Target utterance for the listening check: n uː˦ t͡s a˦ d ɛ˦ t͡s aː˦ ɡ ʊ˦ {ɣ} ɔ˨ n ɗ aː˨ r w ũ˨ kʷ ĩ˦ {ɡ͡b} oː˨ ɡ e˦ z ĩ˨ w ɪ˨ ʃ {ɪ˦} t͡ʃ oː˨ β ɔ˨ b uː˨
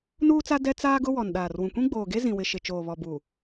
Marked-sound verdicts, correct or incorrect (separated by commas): incorrect, correct, incorrect